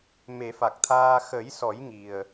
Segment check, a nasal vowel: absent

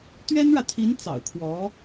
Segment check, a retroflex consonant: present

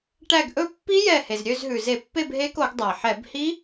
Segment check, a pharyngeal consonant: present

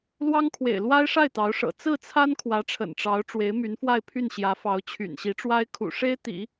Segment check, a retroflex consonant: present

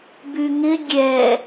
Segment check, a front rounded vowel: present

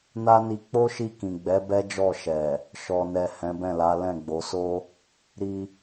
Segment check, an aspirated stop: absent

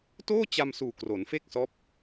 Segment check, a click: absent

